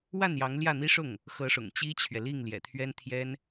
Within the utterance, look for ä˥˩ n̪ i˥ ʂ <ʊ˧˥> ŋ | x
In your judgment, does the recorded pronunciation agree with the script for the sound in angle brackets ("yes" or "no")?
no